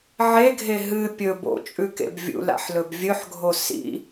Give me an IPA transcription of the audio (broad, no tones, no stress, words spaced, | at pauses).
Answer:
ʕeɡʱe ɦɨ pʲɵ bo̰ t͡ʃʼʉkḛbvʲṵla̰ħ lɵbvʲɵħɡʱo sḭ